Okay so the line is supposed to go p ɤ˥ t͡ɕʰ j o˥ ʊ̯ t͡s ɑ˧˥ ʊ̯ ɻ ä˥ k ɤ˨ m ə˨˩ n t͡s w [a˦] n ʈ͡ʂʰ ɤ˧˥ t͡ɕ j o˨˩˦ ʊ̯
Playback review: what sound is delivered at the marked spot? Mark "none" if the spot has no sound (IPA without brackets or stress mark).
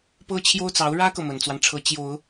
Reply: a˦